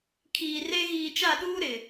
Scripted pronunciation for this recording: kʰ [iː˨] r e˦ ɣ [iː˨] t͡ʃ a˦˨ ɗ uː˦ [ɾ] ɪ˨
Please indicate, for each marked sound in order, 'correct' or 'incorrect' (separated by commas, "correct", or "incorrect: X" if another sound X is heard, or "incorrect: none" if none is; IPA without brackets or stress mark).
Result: correct, correct, correct